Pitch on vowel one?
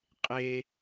high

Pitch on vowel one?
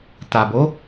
low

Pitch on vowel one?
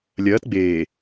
rising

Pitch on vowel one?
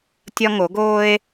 high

